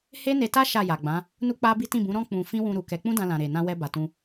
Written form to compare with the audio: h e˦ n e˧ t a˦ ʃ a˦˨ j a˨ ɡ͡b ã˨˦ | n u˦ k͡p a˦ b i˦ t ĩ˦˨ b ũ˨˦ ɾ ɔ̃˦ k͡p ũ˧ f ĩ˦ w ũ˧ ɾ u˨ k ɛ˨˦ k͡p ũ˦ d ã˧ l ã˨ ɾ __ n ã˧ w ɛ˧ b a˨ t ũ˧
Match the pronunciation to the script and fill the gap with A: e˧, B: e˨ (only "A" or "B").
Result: B